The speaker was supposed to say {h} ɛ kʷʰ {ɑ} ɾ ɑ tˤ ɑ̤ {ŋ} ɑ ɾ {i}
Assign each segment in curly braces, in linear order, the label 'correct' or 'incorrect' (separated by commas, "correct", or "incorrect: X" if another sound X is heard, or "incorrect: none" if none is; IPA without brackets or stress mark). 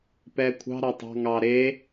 incorrect: p, incorrect: ɑ̤, correct, incorrect: e